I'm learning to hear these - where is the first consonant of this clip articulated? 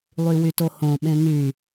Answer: tongue tip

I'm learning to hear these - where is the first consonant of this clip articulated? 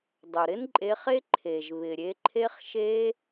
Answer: tongue tip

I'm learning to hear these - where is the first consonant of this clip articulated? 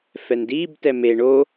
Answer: lips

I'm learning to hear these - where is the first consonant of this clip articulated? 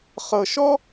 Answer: uvula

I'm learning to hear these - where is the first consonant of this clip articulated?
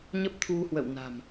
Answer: palate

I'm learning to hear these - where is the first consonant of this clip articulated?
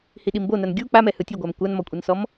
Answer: throat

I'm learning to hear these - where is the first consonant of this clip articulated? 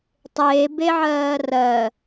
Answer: tongue tip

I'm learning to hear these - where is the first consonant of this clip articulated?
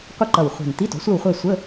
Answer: uvula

